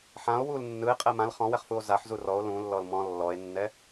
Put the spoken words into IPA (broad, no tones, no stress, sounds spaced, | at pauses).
ħ ã o̯ w u l nː ɯ e̯ qʼ ɛ m ã l χ ɔ̃ w ɛ χ f u o̯ z a ħ z u r ɔ o̯ l ũ lː ɔ l m ɔ̃ lː ɔ e̯ nː ɛ